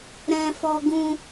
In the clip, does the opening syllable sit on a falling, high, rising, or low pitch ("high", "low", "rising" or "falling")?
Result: high